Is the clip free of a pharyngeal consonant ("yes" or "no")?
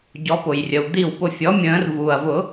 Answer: yes